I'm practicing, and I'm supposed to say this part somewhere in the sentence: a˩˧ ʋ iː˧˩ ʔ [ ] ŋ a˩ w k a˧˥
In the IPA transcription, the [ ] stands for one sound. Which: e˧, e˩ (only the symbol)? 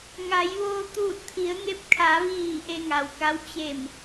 e˧